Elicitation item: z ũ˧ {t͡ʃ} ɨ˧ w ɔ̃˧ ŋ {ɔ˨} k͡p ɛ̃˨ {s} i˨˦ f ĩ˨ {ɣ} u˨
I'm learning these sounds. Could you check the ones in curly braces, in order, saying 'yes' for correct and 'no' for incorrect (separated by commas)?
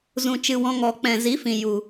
yes, yes, no, no